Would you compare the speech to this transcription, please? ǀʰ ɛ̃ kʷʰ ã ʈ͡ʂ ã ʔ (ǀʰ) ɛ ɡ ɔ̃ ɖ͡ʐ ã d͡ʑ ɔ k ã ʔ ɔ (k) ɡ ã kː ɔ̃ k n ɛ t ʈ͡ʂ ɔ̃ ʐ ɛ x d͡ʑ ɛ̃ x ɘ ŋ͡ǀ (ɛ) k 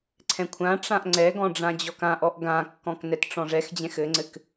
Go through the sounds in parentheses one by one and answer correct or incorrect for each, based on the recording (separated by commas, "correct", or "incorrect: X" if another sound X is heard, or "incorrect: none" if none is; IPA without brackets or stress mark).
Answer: incorrect: ŋ͡ǀ, incorrect: ʔ, incorrect: ɘ